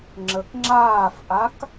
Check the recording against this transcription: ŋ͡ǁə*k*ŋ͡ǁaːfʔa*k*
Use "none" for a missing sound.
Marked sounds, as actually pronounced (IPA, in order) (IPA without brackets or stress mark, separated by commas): k, k